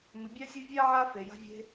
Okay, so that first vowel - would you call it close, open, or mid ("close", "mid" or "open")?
close